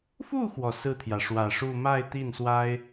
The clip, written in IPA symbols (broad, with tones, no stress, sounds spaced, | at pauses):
f u˥˩ x w ɔ˩ s ɹ̩˥˩ t̪ʰ j ä˩ ʂ w ä˨˩ ʂ u˥˧ m a˥˧ ɪ̯ t̪ i˥˩ n s w a˥ ɪ̯